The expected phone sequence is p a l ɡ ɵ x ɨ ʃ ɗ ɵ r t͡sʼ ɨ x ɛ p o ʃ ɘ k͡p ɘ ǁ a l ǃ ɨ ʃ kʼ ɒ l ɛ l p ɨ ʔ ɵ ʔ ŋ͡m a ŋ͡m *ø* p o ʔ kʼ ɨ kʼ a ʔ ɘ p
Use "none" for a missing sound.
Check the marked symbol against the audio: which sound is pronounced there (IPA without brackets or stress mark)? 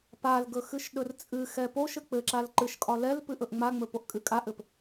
ɵ